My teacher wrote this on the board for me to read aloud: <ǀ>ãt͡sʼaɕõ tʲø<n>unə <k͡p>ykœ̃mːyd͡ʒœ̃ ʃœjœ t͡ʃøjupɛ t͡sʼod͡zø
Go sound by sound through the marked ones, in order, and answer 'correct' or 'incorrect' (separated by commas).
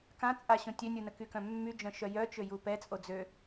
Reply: incorrect, incorrect, incorrect